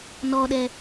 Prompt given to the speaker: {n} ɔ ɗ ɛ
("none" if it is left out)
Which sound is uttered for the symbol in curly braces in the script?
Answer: n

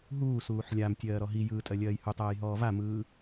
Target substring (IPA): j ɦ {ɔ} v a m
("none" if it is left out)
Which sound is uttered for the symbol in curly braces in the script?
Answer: ɔː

